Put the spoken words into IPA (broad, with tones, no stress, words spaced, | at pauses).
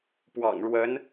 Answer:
pwɑ̰˨˩ŋɻwə˧˥n